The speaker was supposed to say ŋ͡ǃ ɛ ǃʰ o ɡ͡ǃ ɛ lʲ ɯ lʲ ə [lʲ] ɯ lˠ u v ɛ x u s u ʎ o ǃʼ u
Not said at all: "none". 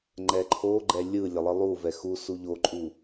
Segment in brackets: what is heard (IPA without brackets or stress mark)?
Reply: lˠ